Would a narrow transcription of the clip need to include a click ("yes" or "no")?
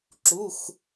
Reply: yes